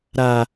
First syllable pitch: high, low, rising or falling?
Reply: high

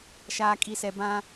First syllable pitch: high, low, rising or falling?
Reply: low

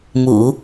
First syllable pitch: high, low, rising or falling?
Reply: low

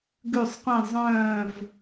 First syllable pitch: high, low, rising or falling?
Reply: falling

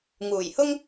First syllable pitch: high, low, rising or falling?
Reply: low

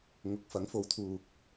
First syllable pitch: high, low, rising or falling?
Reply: rising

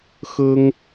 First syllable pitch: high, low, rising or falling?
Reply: high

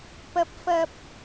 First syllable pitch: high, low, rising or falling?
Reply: low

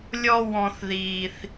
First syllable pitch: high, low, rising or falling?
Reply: high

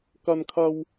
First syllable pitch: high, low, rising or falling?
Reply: high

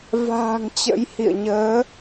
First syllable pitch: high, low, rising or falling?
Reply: low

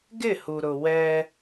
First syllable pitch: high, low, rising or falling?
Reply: falling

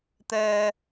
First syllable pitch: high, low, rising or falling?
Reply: low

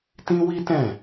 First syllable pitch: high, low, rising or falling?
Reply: high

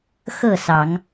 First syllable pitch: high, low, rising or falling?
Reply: falling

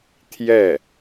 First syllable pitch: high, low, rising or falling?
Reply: falling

